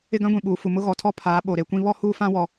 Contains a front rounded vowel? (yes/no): no